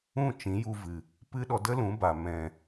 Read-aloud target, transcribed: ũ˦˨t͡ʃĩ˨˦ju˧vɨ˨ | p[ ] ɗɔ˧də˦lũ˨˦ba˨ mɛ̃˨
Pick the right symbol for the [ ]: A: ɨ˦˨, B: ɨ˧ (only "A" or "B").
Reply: B